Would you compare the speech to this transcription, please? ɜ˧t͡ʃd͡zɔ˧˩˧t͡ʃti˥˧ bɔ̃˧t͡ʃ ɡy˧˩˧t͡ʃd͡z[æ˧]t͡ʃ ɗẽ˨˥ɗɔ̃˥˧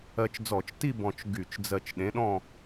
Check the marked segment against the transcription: incorrect: ɜ˧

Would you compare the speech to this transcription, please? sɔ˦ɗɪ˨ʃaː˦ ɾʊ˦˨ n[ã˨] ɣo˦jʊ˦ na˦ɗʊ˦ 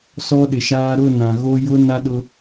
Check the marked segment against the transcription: correct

